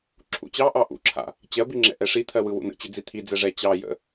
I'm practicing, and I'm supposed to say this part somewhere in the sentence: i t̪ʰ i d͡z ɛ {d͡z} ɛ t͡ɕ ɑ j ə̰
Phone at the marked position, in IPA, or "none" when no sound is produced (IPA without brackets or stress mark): ʐ